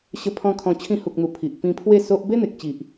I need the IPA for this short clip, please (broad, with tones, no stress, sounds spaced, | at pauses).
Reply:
ɕ ə˧ pʰ ɔ̃˧ kʰ ɔ̃˧ t͡ɕʰ ĩ˧ h u˨ k̚ n̪ u˨˩ pʰ i˨ ʔ p ĩ˧ pʰ w e˥˧ s o˦ ʔ b e˦ n̪ e˨ k̚ t͡ɕ i˨ ʔ